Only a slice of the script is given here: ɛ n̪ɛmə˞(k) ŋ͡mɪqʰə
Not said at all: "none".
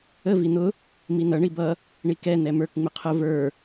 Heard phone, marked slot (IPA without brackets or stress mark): k